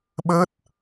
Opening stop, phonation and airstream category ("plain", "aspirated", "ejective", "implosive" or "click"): implosive